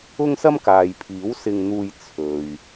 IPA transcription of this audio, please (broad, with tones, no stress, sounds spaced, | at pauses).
ʊ˥ ŋ s ɐ˥ m k aː˨ j pʰ iː˨˥ w s ɪ˧ ŋ n̪ uː˧ j t͡sʰ ɵ˨ ɥ